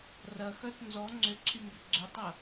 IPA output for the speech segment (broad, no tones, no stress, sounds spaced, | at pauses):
r ɐ x œ t n z ɔ ŋ͡ǀ ʏ ǀʰ y m b ʏ ɡ͡ǀ ʏ tˤ ə